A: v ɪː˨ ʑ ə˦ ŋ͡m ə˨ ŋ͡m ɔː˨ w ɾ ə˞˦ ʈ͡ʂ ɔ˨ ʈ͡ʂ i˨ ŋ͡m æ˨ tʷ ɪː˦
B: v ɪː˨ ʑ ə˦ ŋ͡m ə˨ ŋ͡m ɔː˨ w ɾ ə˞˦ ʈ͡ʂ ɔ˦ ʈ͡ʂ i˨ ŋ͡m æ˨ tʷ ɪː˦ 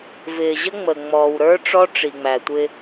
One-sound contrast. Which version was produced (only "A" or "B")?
B